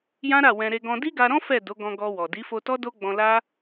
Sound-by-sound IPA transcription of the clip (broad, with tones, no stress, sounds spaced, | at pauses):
j ã˦ ɾ a˦˨ w ɛ̃˧ ɾ e˧ ɡ ɔ̃˧ d i˦ ɡ a˧ ɾ ɔ̃˦ f ɛ˦˨ d o˨˦ ɡ ɔ̃˧ ɡ ɔ˧ w ɔ˨ d i˨˦ f o˧ t ɔ˦ d o˦ ɡ͡b ɔ̃˧ l a˦